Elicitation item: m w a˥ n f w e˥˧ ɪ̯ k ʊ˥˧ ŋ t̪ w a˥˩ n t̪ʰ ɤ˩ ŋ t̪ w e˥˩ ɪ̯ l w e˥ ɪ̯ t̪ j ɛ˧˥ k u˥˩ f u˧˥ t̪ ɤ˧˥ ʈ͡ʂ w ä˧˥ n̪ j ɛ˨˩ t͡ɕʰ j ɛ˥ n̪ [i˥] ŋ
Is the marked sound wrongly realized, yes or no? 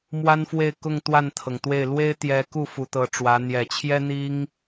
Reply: no